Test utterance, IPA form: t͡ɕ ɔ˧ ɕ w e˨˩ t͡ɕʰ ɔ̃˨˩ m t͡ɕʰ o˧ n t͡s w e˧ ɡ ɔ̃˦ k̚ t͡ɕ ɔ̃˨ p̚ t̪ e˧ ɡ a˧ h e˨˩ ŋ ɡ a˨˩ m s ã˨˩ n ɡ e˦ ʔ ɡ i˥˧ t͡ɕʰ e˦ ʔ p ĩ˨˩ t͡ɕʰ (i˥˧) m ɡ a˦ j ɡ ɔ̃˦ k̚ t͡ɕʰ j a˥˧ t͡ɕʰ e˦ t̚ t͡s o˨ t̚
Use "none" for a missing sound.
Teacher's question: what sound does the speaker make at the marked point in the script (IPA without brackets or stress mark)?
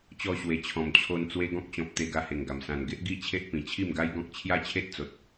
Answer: i˥˧